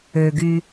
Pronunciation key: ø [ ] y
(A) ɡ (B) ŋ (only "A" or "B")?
A